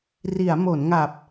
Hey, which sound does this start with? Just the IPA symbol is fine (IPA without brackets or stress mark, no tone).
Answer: r